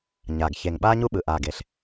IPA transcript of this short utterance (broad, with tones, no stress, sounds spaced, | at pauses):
ɲ a˨˩ ɡ ç e˨˩ ŋ ɓ aː˦ ɲ u˦ ɓ ɯ˨˩ ʔ a˨˩ ɡ e˨˩ ɬ